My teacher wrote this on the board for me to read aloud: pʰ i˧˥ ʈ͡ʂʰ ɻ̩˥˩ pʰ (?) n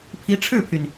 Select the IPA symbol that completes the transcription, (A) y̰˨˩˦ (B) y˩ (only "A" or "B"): B